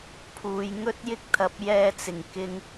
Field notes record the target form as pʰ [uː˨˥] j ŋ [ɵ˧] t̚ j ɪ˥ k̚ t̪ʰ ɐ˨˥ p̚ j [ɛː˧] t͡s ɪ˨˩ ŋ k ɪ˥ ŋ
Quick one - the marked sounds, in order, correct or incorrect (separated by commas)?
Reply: incorrect, incorrect, correct